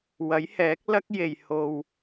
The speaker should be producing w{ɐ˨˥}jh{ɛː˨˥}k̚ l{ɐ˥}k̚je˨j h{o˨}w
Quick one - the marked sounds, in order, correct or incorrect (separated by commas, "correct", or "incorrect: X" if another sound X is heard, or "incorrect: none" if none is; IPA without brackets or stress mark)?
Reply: correct, correct, correct, correct